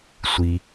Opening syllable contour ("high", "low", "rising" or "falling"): low